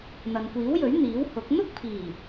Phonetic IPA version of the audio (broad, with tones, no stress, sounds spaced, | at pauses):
n̪ ɐ˨ n kʷ iː˨˥ w j ɵ˨˥ ɥ n̪ iː˨˥ w h ʊ˨˥ k̚ n̪ ʊ˥ k̚ pʰ iː˨˩